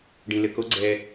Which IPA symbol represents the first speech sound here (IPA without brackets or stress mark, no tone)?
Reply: ɖ